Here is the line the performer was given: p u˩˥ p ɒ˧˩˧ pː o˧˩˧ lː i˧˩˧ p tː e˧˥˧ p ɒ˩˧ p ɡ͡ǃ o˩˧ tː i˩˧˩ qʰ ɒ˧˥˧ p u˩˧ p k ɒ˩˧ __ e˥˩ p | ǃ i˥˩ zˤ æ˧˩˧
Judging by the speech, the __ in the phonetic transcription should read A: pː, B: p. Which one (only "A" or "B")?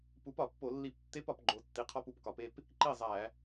B